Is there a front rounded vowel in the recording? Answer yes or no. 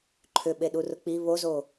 yes